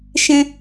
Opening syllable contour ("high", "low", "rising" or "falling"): high